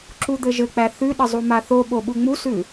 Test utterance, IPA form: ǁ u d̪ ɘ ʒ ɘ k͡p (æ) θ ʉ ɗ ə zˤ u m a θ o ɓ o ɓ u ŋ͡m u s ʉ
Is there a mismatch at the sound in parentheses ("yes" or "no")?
no